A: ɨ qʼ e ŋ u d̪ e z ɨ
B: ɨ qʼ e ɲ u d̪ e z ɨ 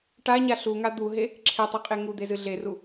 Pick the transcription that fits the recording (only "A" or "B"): A